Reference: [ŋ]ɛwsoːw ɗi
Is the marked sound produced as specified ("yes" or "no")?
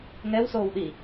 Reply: yes